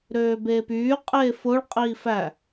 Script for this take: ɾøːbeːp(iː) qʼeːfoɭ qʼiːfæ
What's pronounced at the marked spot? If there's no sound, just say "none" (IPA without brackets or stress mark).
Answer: yː